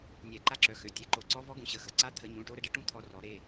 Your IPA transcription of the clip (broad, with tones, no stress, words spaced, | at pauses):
nʲɛ˨˩˦ǃa˧˥ǁœ˩˥xø˩˧˩ tʲɛ˩˧˩ǃo˨˩˦ǀɔ˧˥ vɔ˧˥ɡũ˩˥ɕə˩˧˩xə˩˧˩ ǀa˧˥ t̪ʰə˨˩˦ɲũ˩˧˩ʈo˧ ɾə˧ɖə˧˥ʈũ˧˥ t̪ʰɔ˧rɔ˨˩˦ ɾe˩˧˩